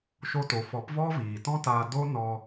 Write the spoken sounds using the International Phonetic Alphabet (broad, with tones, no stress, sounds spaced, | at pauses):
ʃ o˧ t o˨ f ɔ˨˦ p v ɔ˦ v iː˨ t ɔ̃˦ t aː˧ d o˦ n ɔ˧